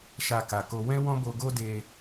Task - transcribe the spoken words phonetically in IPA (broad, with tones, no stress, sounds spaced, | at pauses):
ʃ a˧ k a˨ k o˧ w ɛ̃˦ w ɔ̃˦ b o˧ ɡ o˦ d e˧